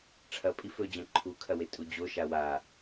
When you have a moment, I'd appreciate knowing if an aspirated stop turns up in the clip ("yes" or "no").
yes